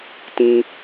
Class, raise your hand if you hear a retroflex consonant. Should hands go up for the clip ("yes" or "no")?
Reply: no